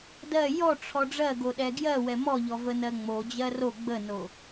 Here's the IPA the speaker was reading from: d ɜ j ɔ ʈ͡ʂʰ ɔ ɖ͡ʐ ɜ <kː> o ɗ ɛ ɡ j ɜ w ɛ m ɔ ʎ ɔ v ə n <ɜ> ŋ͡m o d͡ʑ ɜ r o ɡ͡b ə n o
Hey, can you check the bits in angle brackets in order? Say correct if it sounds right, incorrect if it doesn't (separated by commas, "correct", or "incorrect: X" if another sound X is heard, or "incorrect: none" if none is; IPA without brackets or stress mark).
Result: incorrect: ɡ, correct